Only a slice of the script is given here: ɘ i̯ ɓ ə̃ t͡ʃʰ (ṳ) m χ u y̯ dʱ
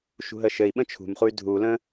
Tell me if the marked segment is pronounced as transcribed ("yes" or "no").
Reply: yes